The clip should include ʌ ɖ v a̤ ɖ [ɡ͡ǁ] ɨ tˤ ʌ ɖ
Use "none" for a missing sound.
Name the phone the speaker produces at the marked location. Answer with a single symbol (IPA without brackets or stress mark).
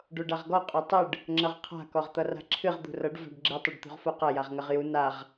ɡ͡ǁ